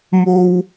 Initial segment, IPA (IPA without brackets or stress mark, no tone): m